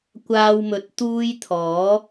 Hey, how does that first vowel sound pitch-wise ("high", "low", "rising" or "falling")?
high